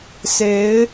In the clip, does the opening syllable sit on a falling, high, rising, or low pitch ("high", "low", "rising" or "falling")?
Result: rising